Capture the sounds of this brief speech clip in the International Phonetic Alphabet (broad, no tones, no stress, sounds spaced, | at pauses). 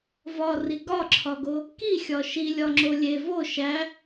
v ɒ r i ɡ ɒ ǁʰ ɒ ɡ o | k i xʲ ɒ ʃ i lʲ ɒ ŋ͡ǁ o lʲ e v o ʃ æ